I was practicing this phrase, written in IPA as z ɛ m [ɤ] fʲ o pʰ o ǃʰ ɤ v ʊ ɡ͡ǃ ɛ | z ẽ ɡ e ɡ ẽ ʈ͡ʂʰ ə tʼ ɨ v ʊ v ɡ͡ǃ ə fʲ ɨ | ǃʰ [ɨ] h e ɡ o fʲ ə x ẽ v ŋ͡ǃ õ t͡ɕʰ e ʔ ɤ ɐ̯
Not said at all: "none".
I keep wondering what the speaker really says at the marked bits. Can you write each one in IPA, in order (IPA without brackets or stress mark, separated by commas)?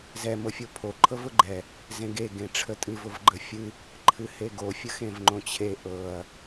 ɤ, ɨ